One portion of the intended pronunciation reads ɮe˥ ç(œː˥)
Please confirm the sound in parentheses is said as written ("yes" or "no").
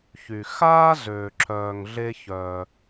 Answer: no